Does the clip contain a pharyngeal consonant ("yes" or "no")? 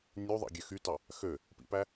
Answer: no